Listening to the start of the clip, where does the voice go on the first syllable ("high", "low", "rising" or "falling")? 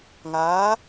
rising